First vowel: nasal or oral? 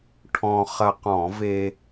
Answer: nasal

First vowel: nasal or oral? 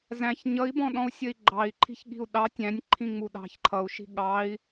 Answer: nasal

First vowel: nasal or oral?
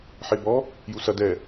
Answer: oral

